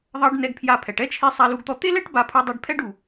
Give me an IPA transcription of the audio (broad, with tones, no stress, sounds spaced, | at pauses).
ðˤ ɑ˧ ɖ n ɛ˧ ɡ pʰ j a˧ pʰ ɛ˩ ʈ ɛ˥ t͡ʃʰ e˧ sˤ a˧ l u˧ ɡ t̪ ɔ˧ t̪ e˥ l ɛ˥ ʈ b a˧ pʰ u˧ dˤ ɛ˧ ɖ pʰ ɛ˥ ɖ u˩